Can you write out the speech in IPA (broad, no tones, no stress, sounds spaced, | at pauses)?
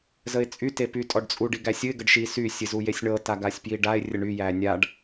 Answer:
z ə ɪ̯ t͡sʼ y t e p y tʼ ɔ ɖ t͡sʼ u ɖ i ɡ æ sʲ ɨ ɪ̯ ɡ ə ɖ ʃ i s y sʲ ɨ z u j e sʲ ɳ ɤ t a ɡ a sʲ p j i ɖ a ɪ̯ rʲ ə ɳ y j æ nʲ a ɖ